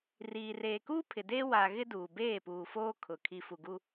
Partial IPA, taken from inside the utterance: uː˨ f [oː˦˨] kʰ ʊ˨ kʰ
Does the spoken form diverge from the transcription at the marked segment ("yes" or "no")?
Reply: yes